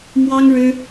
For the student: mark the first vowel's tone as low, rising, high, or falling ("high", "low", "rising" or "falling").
high